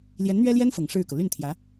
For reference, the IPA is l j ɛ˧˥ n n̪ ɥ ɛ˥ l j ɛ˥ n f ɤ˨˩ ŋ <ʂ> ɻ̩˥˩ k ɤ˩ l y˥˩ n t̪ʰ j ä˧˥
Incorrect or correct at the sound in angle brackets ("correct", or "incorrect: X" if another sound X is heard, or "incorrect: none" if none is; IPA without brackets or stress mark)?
correct